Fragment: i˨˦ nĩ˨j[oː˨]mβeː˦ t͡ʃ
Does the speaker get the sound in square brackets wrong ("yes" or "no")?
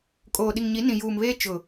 yes